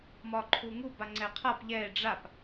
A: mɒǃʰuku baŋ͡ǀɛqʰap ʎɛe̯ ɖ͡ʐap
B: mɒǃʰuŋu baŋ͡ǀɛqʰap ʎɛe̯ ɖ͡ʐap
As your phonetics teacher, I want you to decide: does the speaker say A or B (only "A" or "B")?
B